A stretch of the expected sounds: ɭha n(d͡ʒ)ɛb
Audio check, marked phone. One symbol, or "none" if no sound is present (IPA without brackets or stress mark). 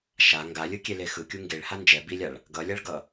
d͡ʒ